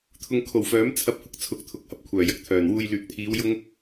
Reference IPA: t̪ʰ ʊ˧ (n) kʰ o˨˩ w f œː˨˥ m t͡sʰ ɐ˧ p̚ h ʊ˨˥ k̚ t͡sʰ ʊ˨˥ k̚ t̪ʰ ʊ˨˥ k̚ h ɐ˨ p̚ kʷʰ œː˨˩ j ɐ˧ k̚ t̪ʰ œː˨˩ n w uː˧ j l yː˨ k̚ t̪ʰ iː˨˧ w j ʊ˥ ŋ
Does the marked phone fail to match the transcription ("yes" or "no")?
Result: yes